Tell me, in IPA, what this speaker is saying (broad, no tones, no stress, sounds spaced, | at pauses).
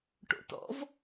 ʈ o̰ t ɔ̰ v